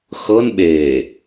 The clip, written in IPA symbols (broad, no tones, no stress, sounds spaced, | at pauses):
x ɤ n ɓ eː